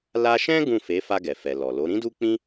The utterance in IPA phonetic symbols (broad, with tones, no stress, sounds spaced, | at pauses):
l a˦ ʃ ɛ̃˦ ɡ ũ˦˨ f e˨˦ f a˧ ɡ ɛ˨ f ɛ˨ l ɔ˨ l o˨˦ ɾ ĩ˦ d u˦ k͡p ĩ˦